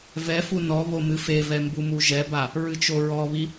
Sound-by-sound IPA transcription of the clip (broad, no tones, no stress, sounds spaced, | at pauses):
v ɛ f u n ɔ β o m ɨ f e v ɛ m b u m u ʒ ɛ b a | ɹ ɨ t͡ʃ o ɹ ɔ β i